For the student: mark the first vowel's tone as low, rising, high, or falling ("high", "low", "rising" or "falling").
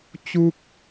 high